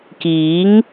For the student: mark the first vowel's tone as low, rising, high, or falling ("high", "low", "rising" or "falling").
rising